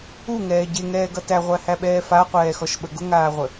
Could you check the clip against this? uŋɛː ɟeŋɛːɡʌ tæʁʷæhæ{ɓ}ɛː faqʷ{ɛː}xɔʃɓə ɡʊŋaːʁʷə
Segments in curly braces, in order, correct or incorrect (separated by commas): correct, correct